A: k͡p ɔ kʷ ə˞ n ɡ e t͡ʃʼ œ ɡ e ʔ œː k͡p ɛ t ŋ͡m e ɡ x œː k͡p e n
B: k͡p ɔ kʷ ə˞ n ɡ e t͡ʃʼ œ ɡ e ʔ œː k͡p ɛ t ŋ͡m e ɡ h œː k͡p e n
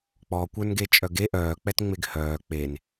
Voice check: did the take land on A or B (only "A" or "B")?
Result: B